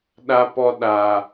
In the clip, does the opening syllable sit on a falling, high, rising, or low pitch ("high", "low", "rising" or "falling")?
high